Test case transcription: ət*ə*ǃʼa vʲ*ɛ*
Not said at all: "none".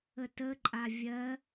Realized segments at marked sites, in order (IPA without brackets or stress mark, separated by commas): ə, ɜ